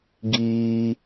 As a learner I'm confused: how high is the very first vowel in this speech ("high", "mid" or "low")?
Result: high